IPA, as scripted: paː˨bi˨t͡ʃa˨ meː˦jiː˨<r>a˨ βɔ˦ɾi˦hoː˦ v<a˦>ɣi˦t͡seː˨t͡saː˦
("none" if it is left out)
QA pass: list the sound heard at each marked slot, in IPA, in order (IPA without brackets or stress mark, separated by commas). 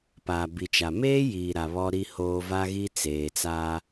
ɾ, a˦